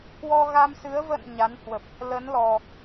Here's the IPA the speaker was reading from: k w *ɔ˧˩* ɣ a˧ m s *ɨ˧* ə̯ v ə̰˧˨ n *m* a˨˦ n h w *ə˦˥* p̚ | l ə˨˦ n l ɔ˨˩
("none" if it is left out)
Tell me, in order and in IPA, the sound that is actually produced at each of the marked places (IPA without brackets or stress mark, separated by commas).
ɔ˧, ɨ˨˦, ɲ, ə˨˩